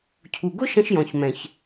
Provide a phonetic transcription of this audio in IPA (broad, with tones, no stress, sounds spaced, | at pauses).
cʰ u˨ ɡ ʊ˦ ʃ ə̃˦ ʃ j ɔ̃˨ ç m ɛ̃˨ ç